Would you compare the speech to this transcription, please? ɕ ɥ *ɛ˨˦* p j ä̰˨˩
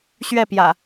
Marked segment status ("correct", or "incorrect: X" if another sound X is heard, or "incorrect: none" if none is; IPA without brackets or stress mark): incorrect: ɛ˥˨